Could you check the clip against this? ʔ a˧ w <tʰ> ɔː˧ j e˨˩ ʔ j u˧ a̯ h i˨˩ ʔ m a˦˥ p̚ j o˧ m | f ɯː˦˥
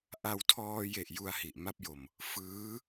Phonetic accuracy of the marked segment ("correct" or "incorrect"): correct